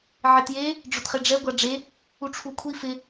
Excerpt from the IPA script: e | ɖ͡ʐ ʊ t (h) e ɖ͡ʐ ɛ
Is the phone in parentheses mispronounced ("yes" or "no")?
yes